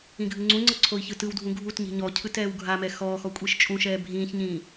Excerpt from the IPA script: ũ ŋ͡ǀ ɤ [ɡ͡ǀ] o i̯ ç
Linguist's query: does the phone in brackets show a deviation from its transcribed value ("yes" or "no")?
yes